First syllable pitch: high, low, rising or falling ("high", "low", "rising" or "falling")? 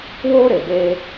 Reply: high